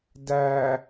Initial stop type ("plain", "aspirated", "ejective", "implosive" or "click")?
plain